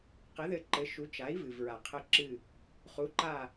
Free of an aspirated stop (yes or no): no